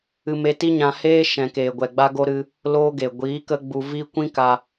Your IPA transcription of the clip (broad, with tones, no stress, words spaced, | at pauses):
ɨ˧me˧ti˦ɲã˧ heː˦ ʃɛ̃˨keː˨ ɡʷɛ˨ɡ͡ba˧ɡo˧ ɾɨ˦ | loː˦ɡe˨ ɡʷiː˨˦ kə˦ɡ͡bu˧ vi˦ kʷĩ˦ka˧